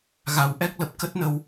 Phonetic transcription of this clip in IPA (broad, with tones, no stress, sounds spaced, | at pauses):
ɣ a˨˩ w ʔ ɛ˦˥ k̚ l ə˨˩ p̚ k ə˦˥ t̚ n ə˧ w